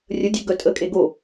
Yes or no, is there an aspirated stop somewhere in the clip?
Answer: no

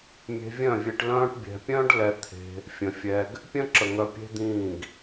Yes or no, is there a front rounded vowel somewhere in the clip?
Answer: yes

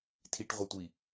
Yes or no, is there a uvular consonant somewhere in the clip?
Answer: yes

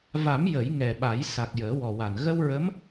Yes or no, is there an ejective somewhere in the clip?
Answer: no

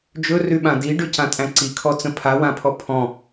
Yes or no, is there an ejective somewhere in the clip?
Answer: yes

